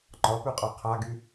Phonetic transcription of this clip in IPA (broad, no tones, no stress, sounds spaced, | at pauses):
ŋ͡ǃ ɒ p ʉ qʼ a qʰ a ɡ y